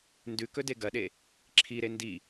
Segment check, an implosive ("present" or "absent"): present